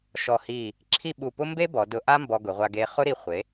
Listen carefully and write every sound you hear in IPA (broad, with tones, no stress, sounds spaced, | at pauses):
ʃ ɔ˧˩ h i˧˩ | ǁʰ i˥˧ ɓ u˧˩ p ʊ˥ m b e˥ b ɔ˩˧ d ʊ˧ ʔ a˥ m b ɔ˧ ɡ ʊ˩˧ ʁʷ a˧ ɡ e˧ χ ʊ˥ ɾ i˧ χʷ e˩˧